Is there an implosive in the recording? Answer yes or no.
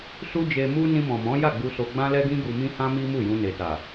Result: no